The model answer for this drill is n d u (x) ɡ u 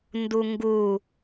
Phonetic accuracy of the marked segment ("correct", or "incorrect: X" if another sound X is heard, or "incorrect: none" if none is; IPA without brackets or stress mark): incorrect: ŋ